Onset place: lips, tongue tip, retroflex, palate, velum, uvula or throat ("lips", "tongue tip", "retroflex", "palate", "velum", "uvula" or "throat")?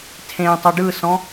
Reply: tongue tip